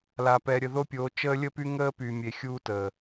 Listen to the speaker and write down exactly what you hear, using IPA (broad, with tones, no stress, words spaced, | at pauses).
la˨pɛ˨ ɾʲə˨ðo˦pʲoː˨˦ t͡ʃəː˦lʲə˦py˦ ŋəː˦py˨mʲe˨ xʲuː˦təː˨